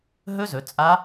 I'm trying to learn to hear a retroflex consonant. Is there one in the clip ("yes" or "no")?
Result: no